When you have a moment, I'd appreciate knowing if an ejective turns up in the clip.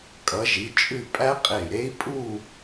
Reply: yes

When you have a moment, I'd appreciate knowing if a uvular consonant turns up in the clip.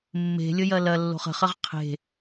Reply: yes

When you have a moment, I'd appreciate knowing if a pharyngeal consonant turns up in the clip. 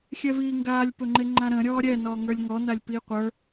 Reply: no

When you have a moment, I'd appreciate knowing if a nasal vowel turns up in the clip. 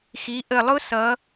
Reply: no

